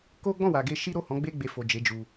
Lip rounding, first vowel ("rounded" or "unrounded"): rounded